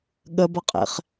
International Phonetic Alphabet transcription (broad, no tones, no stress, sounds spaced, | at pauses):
ɠ ə b ʌ qʼ ḛ χ